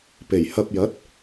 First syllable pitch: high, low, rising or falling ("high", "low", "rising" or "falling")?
low